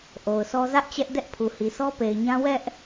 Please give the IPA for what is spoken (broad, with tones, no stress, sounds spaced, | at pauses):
ʔ o˨ ʊ̯ sʰ ɔ˦ z ä˦ ʔ t͡ɕ ɛ˦ ʔ d ɛ˦ ʔ pʰ u˨ h i˨ s ɔ˦ p e˨ ɪ̯ ɲ ã˦ w ɛ˦ ʔ